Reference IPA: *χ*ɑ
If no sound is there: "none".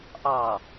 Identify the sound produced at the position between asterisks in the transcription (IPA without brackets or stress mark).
ʔ